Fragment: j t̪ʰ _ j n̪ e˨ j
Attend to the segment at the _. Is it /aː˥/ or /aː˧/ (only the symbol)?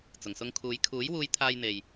aː˧